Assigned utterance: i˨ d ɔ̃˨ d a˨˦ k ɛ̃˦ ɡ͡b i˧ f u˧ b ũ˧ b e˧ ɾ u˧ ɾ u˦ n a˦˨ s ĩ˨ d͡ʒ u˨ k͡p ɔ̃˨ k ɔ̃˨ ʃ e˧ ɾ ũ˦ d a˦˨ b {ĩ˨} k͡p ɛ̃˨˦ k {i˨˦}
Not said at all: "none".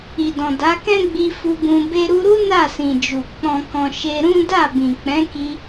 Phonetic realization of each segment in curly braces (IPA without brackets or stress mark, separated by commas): ĩ˨, i˧